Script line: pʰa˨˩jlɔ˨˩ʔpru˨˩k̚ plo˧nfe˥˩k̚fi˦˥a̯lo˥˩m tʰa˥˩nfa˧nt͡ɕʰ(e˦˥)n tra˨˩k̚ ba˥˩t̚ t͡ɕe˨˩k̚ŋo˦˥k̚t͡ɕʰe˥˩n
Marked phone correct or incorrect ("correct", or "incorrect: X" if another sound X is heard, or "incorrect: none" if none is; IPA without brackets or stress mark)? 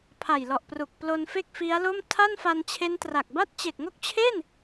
correct